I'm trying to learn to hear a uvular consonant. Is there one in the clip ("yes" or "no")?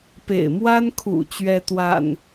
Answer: no